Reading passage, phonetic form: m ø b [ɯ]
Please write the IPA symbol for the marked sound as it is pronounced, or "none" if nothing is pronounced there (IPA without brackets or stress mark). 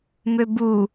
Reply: u